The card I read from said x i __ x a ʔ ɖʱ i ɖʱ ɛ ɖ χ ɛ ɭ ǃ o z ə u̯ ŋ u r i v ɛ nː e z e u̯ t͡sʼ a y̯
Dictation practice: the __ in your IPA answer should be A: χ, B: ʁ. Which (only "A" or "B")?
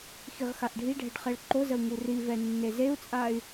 B